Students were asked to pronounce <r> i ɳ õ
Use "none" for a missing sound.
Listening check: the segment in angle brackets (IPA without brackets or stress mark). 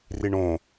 r